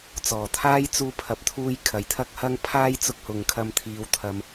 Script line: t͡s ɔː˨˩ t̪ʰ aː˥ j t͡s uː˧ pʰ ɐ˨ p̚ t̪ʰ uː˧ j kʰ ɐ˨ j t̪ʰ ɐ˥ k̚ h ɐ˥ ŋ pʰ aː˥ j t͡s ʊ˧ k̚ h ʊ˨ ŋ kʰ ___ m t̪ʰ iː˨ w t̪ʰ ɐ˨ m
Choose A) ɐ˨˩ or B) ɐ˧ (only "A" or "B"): B